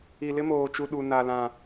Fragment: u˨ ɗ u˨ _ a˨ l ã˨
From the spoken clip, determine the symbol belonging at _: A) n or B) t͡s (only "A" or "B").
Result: A